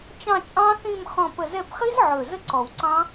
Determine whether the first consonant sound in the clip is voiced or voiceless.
voiceless